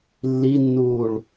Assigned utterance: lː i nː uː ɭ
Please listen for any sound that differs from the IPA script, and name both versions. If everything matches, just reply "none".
none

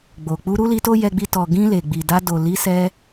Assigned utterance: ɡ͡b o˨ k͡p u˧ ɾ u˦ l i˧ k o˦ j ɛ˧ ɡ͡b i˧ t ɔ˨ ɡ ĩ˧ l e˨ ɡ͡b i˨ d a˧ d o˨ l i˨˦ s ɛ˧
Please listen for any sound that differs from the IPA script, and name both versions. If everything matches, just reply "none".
k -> t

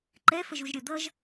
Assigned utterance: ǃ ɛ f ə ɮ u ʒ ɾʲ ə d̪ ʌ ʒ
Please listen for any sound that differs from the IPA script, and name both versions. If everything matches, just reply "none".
ɮ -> ʒ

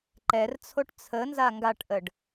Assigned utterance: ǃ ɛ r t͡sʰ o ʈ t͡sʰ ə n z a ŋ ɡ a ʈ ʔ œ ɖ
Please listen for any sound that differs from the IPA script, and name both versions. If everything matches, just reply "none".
œ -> ə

